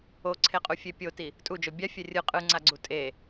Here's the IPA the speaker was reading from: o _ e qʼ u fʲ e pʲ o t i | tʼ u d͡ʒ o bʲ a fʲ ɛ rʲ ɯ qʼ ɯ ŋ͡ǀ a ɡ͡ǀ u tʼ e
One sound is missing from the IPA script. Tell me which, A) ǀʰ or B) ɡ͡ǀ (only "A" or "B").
A